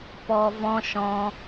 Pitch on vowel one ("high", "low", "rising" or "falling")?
low